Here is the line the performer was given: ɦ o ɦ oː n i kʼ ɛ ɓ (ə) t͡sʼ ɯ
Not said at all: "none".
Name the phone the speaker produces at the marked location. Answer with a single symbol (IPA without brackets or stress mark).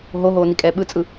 ɯ